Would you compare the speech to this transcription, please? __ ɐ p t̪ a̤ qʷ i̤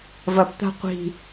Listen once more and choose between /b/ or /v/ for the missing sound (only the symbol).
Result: v